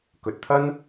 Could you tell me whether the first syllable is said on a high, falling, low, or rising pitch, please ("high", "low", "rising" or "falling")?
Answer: low